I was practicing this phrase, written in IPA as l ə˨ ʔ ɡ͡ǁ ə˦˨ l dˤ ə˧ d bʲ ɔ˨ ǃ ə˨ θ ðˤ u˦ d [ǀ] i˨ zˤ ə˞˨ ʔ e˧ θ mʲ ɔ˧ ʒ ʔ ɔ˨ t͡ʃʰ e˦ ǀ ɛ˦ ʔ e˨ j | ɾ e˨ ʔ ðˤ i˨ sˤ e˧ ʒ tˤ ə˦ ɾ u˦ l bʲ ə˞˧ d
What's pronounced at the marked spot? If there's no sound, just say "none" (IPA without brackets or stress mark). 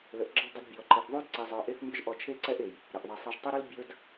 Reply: ǀ